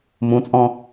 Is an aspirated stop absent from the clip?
yes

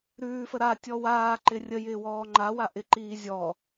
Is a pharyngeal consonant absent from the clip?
yes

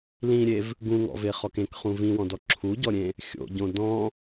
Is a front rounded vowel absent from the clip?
yes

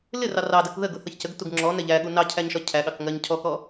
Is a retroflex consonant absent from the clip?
yes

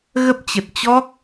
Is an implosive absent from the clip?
yes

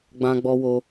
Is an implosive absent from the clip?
yes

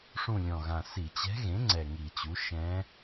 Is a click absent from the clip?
no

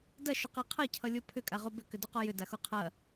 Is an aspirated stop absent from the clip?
no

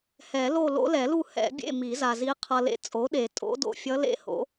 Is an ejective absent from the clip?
no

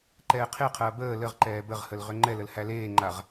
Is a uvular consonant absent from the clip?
no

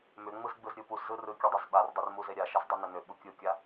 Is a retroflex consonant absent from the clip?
yes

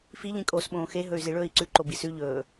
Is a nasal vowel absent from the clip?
no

